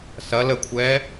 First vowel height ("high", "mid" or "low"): low